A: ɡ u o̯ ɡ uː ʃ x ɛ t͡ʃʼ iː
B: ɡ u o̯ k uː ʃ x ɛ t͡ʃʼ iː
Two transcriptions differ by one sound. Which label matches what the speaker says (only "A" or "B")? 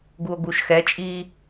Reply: A